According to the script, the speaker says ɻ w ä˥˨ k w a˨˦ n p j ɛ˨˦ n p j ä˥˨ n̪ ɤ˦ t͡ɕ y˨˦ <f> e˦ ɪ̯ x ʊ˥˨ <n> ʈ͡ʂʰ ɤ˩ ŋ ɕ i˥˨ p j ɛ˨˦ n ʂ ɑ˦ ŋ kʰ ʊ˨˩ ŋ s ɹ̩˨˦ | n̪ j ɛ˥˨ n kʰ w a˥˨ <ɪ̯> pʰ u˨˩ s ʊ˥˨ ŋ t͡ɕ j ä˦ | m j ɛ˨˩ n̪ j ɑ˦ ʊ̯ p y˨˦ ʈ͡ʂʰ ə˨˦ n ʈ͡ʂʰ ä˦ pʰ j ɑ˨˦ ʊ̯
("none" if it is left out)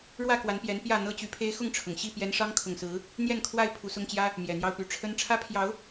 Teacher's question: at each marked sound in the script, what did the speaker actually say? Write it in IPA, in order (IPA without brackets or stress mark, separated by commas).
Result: pʰ, ŋ, ɪ̯